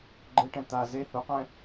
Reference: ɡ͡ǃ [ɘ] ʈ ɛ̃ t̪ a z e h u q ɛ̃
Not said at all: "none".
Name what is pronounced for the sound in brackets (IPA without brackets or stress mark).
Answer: ɘ